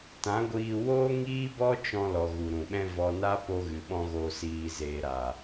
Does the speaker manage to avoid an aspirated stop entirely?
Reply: yes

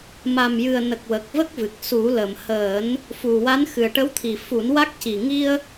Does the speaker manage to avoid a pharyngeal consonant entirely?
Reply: yes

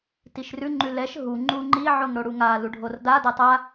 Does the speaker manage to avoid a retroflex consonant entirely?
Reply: no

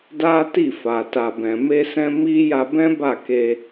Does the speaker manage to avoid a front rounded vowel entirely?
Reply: yes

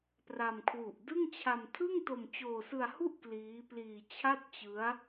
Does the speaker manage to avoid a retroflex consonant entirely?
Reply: yes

